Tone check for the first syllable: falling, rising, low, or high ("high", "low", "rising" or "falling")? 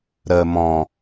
low